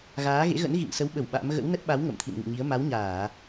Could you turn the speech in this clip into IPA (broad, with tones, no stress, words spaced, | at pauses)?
ɣaː˨˦ ɣḛ˧˥ɣə̰˧˥n ɣḭ˧˨ŋsə˨˦wɓə˧˩w ɓa̰˧˥m ɣə̰˧˥wnə˦˥t̚ɓa˨˦w ŋə̰˧˨mt̪ʰḭ˧˨nŋɨ̰˧˨ɲi˨˦ə̯ ma˨˦wɲaː˧˩˨